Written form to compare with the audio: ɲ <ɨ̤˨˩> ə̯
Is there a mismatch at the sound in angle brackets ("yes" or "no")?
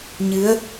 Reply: yes